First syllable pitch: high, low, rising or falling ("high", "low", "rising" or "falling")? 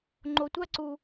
low